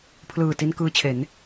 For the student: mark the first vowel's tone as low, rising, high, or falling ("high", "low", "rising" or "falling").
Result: low